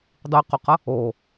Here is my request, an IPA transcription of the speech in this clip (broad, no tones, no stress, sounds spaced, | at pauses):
dˤ ɯ q o q ʌ | o